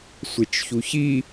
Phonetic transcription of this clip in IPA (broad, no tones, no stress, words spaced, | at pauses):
sʷet͡ʃçuçi